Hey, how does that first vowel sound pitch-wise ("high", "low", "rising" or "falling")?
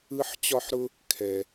high